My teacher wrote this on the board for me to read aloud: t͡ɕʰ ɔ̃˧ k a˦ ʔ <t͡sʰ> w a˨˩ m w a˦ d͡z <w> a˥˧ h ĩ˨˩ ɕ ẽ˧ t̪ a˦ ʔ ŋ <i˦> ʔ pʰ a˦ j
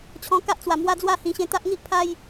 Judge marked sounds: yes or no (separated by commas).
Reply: no, yes, yes